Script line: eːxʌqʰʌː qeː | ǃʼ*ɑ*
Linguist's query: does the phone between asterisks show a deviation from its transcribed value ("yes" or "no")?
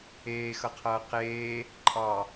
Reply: no